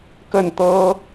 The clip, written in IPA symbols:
k ə˥˩ n t̪ ɤ˥

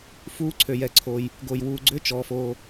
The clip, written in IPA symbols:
f uː˨˦ ǀʰ ø˩ j ɛ˩ ǀʰ o˩ j | ɡ o˩ j w uː˩ ɡ͡ǀ ʏ˨˦ t͡ʃ ɔː˩ f o˩

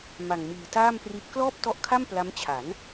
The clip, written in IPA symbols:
m a˨˩ ŋ m iː˨˩ t aː˥˩ m p r i˦˥ t̚ k l ɔː˥˩ p̚ t ɔ˦˥ ʔ kʰ a˥˩ m p l a˦˥ m t͡ɕʰ a˩˦ n

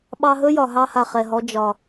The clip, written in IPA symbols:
ɓ ɑ˧ ɦ ɵ˦ j ɒ˨ ɦ ɑ˧ h a˨ χ ɛ˨ ɦ ɔ˧ d͡ʒ ɒ˨

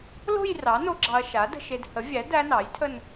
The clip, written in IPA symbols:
l o̤˥˧ j r ɑ˩˥ n o˧ ɡ͡ǁ ɑ˧ ɐ̯ ʃ a˩˥ d ə̤˧ ʃ e˧ d h ə˩˥ vʲ æ˩˥ d æ˦˥ n ɑ˩˥ j tʰ ə˥˧ n

